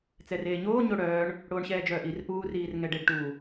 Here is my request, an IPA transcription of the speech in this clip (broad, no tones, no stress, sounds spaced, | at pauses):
t͡s ɛ r eː ɲ oː ɲ o ɽ œː ɳ | ɽ oː ɳ ɕ ɛː d͡ʒ œː ʔ i r ʔ uː r iː r ŋ ɛ ɖ e ɖ ʈ u